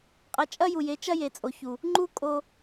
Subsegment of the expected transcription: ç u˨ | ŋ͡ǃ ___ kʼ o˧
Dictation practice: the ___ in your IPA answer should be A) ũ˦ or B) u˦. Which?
B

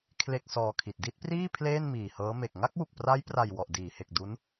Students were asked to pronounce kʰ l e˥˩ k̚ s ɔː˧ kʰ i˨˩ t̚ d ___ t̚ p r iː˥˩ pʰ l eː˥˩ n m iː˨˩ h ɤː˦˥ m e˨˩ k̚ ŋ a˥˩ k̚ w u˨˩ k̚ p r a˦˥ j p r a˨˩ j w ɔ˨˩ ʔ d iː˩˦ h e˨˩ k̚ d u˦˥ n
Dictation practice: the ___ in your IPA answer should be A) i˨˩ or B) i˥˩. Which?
B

